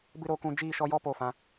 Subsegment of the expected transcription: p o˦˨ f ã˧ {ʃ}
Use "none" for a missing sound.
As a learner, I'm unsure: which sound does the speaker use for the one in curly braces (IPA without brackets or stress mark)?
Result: none